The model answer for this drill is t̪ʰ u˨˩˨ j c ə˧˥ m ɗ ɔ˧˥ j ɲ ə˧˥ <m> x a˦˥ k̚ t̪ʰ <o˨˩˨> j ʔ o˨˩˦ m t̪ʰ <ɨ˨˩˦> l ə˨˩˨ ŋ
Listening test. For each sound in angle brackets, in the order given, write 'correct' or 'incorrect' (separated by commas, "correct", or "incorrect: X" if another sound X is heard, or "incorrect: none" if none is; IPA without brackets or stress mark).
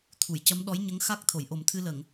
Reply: incorrect: ŋ, correct, incorrect: ɨ˧